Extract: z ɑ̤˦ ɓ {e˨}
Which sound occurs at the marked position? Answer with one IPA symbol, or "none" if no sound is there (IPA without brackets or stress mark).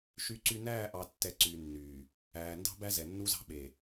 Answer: e˨